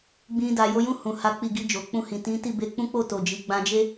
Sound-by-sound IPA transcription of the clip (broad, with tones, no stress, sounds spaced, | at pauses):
ɡ͡b ĩ˧ d a˨ j o˧ j ũ˦ h ũ˧ h a˦ k͡p i˦˨ ɡ i˧ d͡ʒ o˨ k͡p ũ˧ h ĩ˨ t ĩ˨˦ t i˦˨ b e˧ k͡p ũ˦ k͡p o˦˨ t o˨ d͡ʒ i˨ ɡ͡b ã˧ d͡ʒ e˦